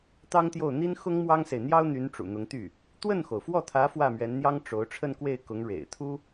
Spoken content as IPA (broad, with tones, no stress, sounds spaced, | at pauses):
t̪ ɑ˥ ŋ t̪ j o˥˩ ʊ̯ n̪ i˥ n x ʊ˥ ŋ m w ɑ˥ ŋ s e˨ ɪ̯ n̪ j ɑ˥ ʊ̯ n̪ y˧˥ n ʈ͡ʂ ṵ˨˩ n̪ ʊ˧˥ ŋ t̪ y˥˩ | t̪ w ə˥˩ n x o˩ ʊ̯ f w ɔ˥˩ t̪ʰ ä˧˥ f w ä˥˩ m ɥ ɛ˧˥ n n̪ j ɑ˥ ŋ ʈ͡ʂ o˧˥ ʊ̯ ʈ͡ʂʰ ə˥˧ n k w e˥˩ ɪ̯ k ʊ˧˥ ŋ ɻ ḛ˨˩ ɪ̯ t̪ʰ u˥